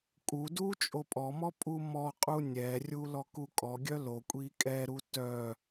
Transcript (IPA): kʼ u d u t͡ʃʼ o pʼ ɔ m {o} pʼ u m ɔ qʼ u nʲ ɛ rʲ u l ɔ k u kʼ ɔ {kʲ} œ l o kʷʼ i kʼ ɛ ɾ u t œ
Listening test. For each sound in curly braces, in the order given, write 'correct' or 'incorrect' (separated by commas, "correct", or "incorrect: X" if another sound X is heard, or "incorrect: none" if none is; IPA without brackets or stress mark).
incorrect: ɔ, incorrect: ɡʲ